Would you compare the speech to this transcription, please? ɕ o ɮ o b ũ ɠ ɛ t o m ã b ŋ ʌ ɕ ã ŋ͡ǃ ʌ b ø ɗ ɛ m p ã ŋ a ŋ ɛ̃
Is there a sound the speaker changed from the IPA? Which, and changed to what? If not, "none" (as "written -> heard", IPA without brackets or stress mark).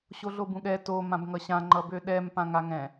none